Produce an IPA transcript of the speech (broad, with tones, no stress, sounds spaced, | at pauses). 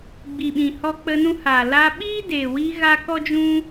ɡ͡b i˨ ɓ ĩ˨ h ɔ˧ k͡p ə˧ n ũ˧ h aː˨ l a˧ ɓ iː˦ d eː˨ w i˧ ɣ a˦ k ɔ˦ d͡ʒ ũ˦